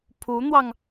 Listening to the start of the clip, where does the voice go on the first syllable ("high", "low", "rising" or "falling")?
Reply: rising